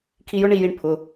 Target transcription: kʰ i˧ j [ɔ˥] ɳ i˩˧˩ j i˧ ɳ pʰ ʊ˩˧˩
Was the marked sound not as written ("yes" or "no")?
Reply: yes